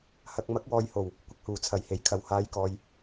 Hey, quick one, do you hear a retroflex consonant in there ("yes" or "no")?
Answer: no